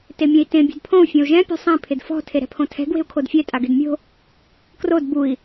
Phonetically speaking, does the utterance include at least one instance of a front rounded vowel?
no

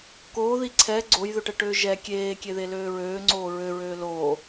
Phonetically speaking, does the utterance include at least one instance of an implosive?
no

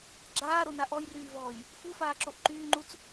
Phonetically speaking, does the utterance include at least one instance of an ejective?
no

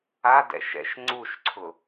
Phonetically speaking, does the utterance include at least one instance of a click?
yes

